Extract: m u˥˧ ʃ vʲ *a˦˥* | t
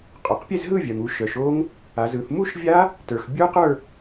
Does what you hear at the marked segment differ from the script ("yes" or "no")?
no